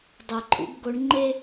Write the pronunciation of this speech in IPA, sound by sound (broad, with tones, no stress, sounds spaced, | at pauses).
dˤ ɛ˨ ǃʰ ṵ˦ b ɡ o˦ ɳ ŋ͡ǃ e˦